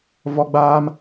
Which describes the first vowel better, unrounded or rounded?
rounded